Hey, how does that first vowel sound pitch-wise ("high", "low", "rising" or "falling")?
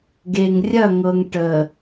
low